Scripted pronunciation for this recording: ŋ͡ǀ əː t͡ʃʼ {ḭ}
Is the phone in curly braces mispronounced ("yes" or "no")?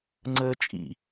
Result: no